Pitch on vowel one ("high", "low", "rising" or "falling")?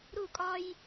falling